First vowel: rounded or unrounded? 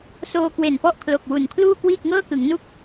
rounded